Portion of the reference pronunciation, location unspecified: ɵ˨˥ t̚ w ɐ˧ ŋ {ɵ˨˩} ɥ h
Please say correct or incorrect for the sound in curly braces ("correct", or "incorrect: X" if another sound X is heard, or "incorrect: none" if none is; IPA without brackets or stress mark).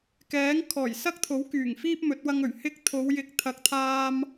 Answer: correct